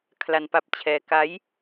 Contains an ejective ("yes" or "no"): no